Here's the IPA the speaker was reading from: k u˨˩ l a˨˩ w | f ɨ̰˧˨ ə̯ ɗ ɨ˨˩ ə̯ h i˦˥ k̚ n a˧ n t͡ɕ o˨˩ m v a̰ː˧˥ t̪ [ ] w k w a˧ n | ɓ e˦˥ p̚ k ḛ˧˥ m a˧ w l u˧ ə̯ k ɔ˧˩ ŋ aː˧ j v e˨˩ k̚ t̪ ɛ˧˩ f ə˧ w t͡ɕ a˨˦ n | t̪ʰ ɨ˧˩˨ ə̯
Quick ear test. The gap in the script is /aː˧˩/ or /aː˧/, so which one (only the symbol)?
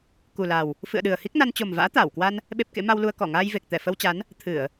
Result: aː˧˩